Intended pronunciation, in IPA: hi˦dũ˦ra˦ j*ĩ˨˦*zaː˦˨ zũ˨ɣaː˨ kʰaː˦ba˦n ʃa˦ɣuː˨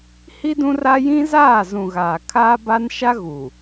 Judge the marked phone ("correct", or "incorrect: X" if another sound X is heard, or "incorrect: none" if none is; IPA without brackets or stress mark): incorrect: ĩ˦